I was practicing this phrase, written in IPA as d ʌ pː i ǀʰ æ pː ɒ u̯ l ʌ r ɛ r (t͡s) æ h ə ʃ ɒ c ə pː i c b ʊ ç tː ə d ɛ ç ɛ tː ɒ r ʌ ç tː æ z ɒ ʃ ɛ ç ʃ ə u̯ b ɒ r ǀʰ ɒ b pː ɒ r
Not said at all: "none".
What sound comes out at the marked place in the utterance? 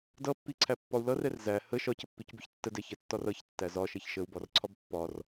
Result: z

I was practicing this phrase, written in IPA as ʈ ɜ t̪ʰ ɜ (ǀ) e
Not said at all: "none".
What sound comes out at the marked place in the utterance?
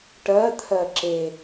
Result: ǁ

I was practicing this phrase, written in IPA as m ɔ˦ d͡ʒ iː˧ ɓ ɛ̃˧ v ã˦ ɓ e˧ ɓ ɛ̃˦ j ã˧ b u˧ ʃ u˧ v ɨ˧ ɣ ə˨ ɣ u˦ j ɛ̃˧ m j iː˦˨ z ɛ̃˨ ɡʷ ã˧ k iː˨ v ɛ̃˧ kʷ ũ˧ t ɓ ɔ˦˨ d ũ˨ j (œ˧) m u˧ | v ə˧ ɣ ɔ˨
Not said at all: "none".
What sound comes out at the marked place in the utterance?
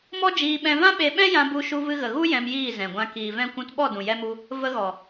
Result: ɛ˧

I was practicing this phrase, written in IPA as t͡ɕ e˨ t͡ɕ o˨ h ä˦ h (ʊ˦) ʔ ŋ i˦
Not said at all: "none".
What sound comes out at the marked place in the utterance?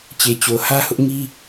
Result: ʊ˦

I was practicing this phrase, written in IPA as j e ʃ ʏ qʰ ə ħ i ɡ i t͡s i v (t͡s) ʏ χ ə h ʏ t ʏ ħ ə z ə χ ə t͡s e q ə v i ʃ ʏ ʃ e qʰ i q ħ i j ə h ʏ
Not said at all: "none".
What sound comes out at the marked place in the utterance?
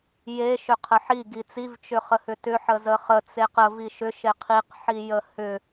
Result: t͡ʃ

